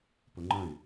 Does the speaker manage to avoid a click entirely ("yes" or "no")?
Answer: no